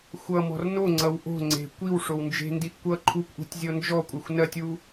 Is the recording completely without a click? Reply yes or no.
no